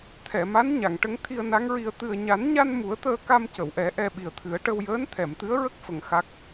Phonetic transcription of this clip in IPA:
t̪ʰ ɛ˨˩˨ m a˧˥ n ɲ a˨˩˨ ŋ ʈ ə˧˥ ŋ t̪ʰ i˧ ə̯ n a˧˥ ŋ ɹ i˧ ə̯ t̪ ɨ˨˩ ə̯ ɲ a˨˩˦ n ɲ a˧ n m u˨˩˦ ə̯ t̪ əː˧ k a˧ m c ə˨˩˨ w ʔ ɛ˨˩˦ ʔ ɛ˧ ɓ i˨˩ ə̯ t̪ʰ ɨ˨˩˦ ə̯ ʈ ə˧ w j əː˧˥ n t̪ʰ ɛ˨˩˨ m t̪ ɨ˧˥ ə̯ ɹ ə˦˥ k̚ f ə˨˩ ŋ x a˦˥ k̚

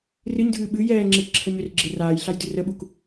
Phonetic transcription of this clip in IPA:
r ɨ ɲ dʱ ɨː ɓ ɨ j ɛː ŋ͡ǁ e k ǁʰ ə ɲ ʏ r ɡ͡ǁ e r aː j ɬ a j d ɨ r ə ɓ u k

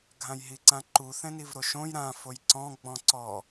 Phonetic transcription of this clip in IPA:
ɡʱ ã j ɦ i ǀ ã ǃ u θ ɛ̃ n i v ɾ o ʃ õ j ɾ ã f o j ǀ ɔ̃ ɡ͡b ɔ̃ ǀ ɔ

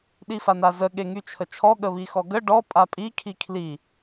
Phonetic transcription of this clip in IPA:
ɗ i f a n a z ə ɠ e ŋ y t͡ʃʰ ə t͡ʃʰ ɔ ɠ ə β i x ɔ ɡ ə ɖ ɔ pʼ a pʼ i kʰ i kʰ l i

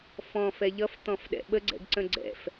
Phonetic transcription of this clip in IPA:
f ɔ̃ f ɛ ʎ ʌ f t̪ ɔ̃ f ɗ ɛ̰ ɓ ə ɡ͡ǀ ɛ̰ ɡ ǀ ə̃ ɡ͡ǀ ɛ̰ f

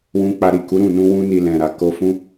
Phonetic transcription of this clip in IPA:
w ũ˧ k͡p a˧ ɾ i˨ k u˨˦ ɾ ũ˦˨ n ũ˧ w ũ˦ n i˧ l ɛ̃˨ ɾ a˨ k o˧ f ũ˦

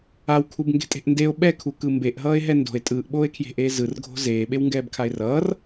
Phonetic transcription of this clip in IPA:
a w kʰ u b ŋ ɡ e̤ tʼ e̤ ʔ n d e o̯ ɓ ɛ kʰ u k ɯ m b e ʔ ɦ ʌː e̯ ɦ ɛ n d o̤ e̯ tʼ ɯː ʔ ɓ oː e̯ kʰ j e̤ ʔ eː z ɯ r ɡʱ o̤ z eː ɓ e w ŋ ɡ ɛː b kʰ a e̯ r ʌː r

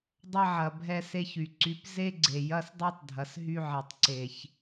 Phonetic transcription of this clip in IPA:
dˤ ɐ˦ ʕ ɐ˨ bʱ ɛ˦ s e˦ ç y˨ ǀ y˦ p z e˦ ɡ͡ǀ e˨ j ɐ˦ s dˤ ɛ˦ tˤ dʱ ɐ˨ s ɦ y˦ ʕ e˨ tˤ ǀ e˨ ç

